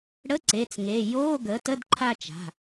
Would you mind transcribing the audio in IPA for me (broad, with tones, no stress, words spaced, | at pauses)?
ɽə˧˥˧ ǀe˩˧˩t͡sŋe˩˧˩ joː˧˥˧ɡəː˩˥tə˧˥˧d ǃʰa˥˧ t͡ʃa̤˩˧˩